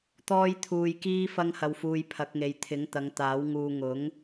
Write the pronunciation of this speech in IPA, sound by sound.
t̪ ɔː˥ j t̪ʰ uː˧ j k iː˥ f ɐ˥ ŋ h ɐ˧ w f uː˧ j pʰ ɐ˨˥ k̚ ŋ e˨ j t̪ʰ ɪ˨˥ ŋ t̪ ɐ˨˧ ŋ t̪ aː˨˥ w ŋ uː˧ ŋ ʊ˨˥ ŋ

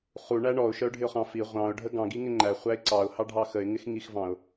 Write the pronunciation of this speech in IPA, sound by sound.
χ u ɳ æ ɳ ɔ ʊ̯ ʃ ə ʊ̯ ɖʱ ɪ ʊ̯ χ ɑ̃ f i ʁʷ ɑ̃ ʊ̯ ɖʱ ə ɡ ɑ̃ ɡ i ŋ ɪ ŋ͡ǃ æ χʷ æ ɪ̯ ǀ ɑ ʊ̯ h ɑ ɖʱ ɑ x ə ɪ̯ ŋ ɪ x ŋ i x v ɑ̃ ʊ̯

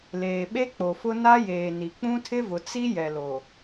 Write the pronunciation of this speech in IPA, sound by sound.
l eː˨ ɓ e˦ k͡p o˨ f ʊ˦ n a˦ j eː˨ n i˨ k͡p ũ˦ tʰ ɪ˦ v ʊ˨ t͡s i˦ j ɛ˨ l o˨

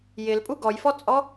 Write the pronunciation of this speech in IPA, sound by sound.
j ɪ l pʼ u ɡ ɔ j f ɔ t͡sʼ ɔ

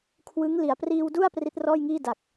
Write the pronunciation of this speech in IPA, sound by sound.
kʰ w ɯ˦˥ ŋ l i˩˦ a̯ p r iː˧ w d u˥˩ a̯ p r i˦˥ t̚ r ɔː˥˩ j ŋ iː˥˩ d a˨˩ k̚

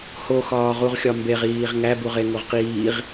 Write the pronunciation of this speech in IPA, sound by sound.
h o x ɒː ʁ u ʁ xʲ ɒ m b e ʁ iː ʁ ŋ æ b u ʁ e ŋ o ʁ q iː ʁ

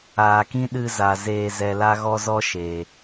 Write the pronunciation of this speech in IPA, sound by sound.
aː˨ k ĩ˦ ɗ ɨ˧ z a˨ z eː˧ z ɛ˧ l a˦ ɣ ɔ˦ z ɔ˦ ʃ e˨

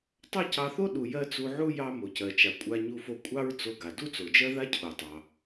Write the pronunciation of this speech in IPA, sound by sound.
tˤ ɑ˥ c ɑ˧ θ o˥ ɗ u˩ j ɜ˧ t͡s u˧ ʕ u˥ j ɑ˧ m o˩ c ɜ˩ t͡ʃ a˩ kʷʼ a˧ ɲ u˧ f o˧ kʷʼ ɑ˥ ɹ t͡s o˧ ɡ a˩ d u˥ t͡s o˩ d͡ʒ ɜ˥ ð a˥ cʰ o˩ tˤ ɑ˩

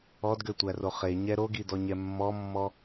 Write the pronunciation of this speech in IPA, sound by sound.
ɔ d ɡ ø tʷ æ r o χ e ɲ ɛ ɾ o ɡ i d ɔ ɲ ɛ mː ɔ mː ɔ

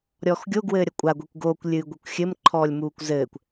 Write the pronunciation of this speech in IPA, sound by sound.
ɾʲ ɔː x ɡʲ o ɡ w ɘː ɾʲ ɐ kʷʼ a ɡʷ e kʷ ɡ oː kʷ lʲ ɨː ɡʷ e kʷ xʲ ɘ m ǃʰ ɔː lʲ m uː kʷ z ɘː kʷ

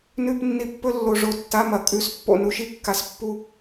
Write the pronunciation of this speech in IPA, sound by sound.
n ʉ˥˧ p nː i˧ pː ɵ˥˧ lː o˧ ʐ o˧˥ tː a˧˥˧ m ɐ˨˩ kʼ ʉ˧˥˧ s pː o̰˧ n u˧ ʃ i˥˧ kː a˧ s pː u˥˧

